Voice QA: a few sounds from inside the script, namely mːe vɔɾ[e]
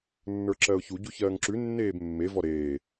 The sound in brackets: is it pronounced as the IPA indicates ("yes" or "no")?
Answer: no